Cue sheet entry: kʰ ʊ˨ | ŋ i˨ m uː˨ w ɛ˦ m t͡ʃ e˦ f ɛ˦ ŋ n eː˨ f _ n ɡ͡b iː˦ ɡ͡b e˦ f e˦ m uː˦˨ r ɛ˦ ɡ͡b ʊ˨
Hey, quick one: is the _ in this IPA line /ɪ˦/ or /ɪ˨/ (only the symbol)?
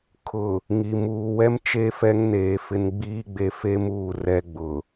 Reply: ɪ˦